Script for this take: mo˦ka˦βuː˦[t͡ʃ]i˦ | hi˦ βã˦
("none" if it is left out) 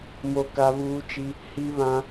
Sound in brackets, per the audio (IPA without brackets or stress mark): t͡ʃ